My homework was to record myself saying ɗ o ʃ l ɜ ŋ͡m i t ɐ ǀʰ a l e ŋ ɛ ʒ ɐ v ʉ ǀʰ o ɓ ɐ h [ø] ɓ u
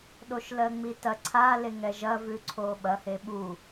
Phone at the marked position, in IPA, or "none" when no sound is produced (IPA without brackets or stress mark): e